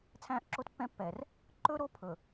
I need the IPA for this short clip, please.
t͡sʰ æ̃ː˦ ʔ ǁ o˦ t pː ɛ̃˦ pː ɛː˨ r | ǃ ɵ˦ ɾ o˦ pʰ ɵ˨

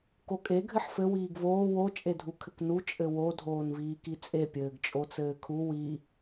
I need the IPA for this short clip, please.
k o kʼ e ɡʱ ɘ ħ f ɘ w iː ɡ v oː w o t͡ʃʼ e dʱ u kʰ ɘ k n u t͡ʃʼ ɘ w o dʱ oː n v iː k i t͡sʼ e pʲ ɘː ɡ t͡ʃʼ o t͡s ɘː kʰ u w i

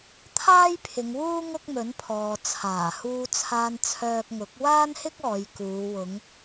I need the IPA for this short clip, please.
t̪ʰ aː˥ j pʰ ɪ˨˧ ŋ w uː˥ ŋ ʊ˥ k̚ m ɵ˨˥ n pʰ ɔː˨ t͡sʰ aː˨˩ h uː˧ t͡sʰ aː˧ n t͡sʰ œː˧ k̚ ŋ ʊ˨˥ k̚ w aː˥ n h ɪ˥ k̚ ɔː˨˧ j k uː˨˧ w ʊ˨˧ ŋ

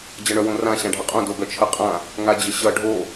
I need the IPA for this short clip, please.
d͡ʑ ʌ ɳ œ w õ r ã ɕ ã ɖʱ ə qʼ õ d o ɡ œ t͡ʃʰ ə qʼ ã | ŋ a d͡ʑ ə ɕ ʌ ɖʱ o

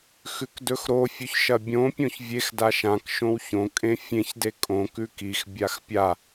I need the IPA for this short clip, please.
x ʉ k d ɵ x ɾ o fʲ ʉ ç ʃ ɐ bʲ õ pʲ õ ç vʲ e x d a ʃ ã k ʃ õ w ç õ kʼ ẽ fʲ ẽ ç d e kʼ õ k ʉ k i x bʲ a x pʲ a

